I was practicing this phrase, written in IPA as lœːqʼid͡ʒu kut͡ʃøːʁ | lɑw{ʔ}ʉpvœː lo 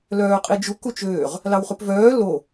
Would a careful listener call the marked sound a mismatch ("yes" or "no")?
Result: yes